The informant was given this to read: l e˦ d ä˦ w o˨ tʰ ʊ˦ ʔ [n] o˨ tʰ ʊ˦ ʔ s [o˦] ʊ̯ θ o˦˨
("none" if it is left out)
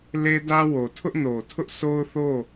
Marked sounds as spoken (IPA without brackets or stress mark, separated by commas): n, o˦